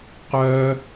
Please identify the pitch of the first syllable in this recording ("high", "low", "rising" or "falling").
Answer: high